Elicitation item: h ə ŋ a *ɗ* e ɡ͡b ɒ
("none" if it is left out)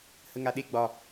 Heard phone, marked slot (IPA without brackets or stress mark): ɗ